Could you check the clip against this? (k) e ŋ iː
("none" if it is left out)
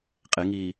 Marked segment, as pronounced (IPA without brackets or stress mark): qʼ